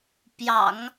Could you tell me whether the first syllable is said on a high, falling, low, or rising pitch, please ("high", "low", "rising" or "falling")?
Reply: low